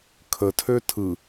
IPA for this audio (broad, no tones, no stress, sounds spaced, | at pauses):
kʰ ə tʰ ø tʰ ɯ